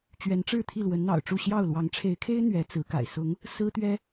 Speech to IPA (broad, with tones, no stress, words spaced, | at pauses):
t͡ɕɥɛ˨˦nʈ͡ʂɻ̩˥˨ t̪ʰi˥˨lwə˨˦nn̪ɑ̰˨˩ʊ̯ʈ͡ʂu˥˨ ɕjɑ˥˨ʊ̯ lwɑ˨˦ŋʈ͡ʂʰe˨˦ɪ̯kʰe˦ɪ̯ n̪ɥɛ˨˦t͡sɹ̩˨˦ka̰˨˩ɪ̯ sʊ˨˦ŋ | sɹ̩˦ t̪ɥɛ˦